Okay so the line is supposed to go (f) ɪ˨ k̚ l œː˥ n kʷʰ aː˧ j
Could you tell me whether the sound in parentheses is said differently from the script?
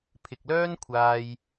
yes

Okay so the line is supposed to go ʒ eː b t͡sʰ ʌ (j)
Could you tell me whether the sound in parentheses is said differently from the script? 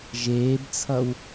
yes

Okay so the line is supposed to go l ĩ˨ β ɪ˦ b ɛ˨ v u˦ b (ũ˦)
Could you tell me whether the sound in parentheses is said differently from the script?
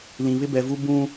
no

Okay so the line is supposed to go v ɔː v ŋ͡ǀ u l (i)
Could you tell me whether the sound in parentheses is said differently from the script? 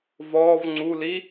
no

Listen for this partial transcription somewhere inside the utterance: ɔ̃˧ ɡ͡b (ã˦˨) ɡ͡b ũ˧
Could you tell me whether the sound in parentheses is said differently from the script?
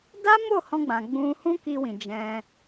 yes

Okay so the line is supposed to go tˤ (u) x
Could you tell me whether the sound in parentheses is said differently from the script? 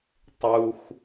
no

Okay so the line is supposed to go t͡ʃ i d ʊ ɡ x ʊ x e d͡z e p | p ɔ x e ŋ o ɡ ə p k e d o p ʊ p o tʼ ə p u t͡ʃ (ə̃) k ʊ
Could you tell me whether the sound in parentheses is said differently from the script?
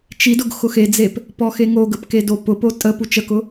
yes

